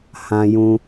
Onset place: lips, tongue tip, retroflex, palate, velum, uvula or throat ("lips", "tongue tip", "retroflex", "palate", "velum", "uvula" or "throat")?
throat